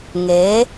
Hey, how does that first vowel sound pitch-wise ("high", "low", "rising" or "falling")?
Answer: rising